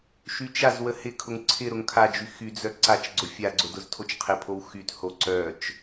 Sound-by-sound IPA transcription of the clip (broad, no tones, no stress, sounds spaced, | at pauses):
ʃ y t͡ʃ a z w ə h ɪ kʰ ʊ ŋ ǀʰ ɪ ɾ ʊ ŋ kʰ a d͡ʒ y x y d͡z œ ǀ a t͡ʃ ɡ͡ǀ ʊ fʲ a ɡ͡ǀ ʊ d ʊ z tʰ o t͡ʃ qʰ ɪ pʰ o w x y t h o ǀ œ t͡ʃ